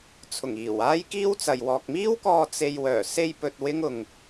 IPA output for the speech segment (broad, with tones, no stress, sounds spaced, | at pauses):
t͡sʰ ʊ˨˩ ŋ iː˨˩ w aː˥ j k iː˥ w t͡s ɐ˨ j w ɔː˨ k̚ m iː˥ w k ɔː˧ t͡s e˧ j w œː˨˩ s e˧ j p ɵ˧ t̚ w ɪ˥ ŋ ʊ˧ ŋ